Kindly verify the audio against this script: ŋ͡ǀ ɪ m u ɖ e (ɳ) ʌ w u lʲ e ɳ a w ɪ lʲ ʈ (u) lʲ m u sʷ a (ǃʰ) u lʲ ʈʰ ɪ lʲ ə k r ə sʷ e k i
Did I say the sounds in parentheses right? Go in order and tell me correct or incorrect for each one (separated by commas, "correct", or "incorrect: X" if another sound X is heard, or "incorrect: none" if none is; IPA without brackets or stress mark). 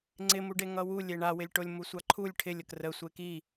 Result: incorrect: ŋ, incorrect: o, correct